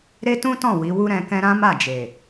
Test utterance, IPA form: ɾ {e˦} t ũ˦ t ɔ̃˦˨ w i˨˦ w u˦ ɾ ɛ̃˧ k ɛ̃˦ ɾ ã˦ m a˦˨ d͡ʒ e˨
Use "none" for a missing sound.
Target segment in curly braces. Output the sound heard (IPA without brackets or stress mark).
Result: e˦